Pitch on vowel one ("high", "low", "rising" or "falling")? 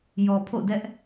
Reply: low